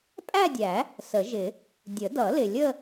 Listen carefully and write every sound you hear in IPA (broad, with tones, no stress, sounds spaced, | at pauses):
pʼ æ˥˧ dʲ æ˨˩˦ | s ə˨˩˦ ʒ ɪ˨˩˦ | dʲ ə˨˩˦ d ʌ˨˩˦ l ɪ˨ lʲ ə˥˧